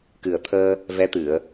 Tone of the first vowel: low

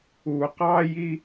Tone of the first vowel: low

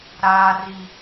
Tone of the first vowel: high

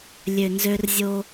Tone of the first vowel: low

